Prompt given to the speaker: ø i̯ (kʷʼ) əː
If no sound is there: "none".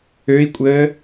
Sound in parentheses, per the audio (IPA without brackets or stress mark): kʷʼ